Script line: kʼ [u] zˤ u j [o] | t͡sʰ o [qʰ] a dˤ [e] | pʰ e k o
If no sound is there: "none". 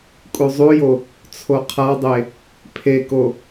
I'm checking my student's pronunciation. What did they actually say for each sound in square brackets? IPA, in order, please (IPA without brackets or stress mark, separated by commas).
u, o, qʰ, e